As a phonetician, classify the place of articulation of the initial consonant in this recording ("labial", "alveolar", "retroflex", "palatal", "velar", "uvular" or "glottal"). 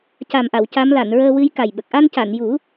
palatal